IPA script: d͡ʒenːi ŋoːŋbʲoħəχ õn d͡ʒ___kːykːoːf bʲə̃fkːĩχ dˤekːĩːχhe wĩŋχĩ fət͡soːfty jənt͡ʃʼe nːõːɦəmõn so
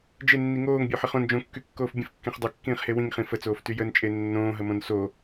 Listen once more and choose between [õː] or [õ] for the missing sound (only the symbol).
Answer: õ